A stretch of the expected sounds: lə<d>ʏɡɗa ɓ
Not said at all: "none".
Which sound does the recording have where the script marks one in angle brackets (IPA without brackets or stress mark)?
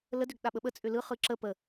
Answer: d